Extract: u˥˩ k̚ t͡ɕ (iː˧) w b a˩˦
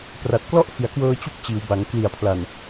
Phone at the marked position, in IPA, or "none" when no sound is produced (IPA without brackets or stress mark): iː˩˦